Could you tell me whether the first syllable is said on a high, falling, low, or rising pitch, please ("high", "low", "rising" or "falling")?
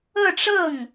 falling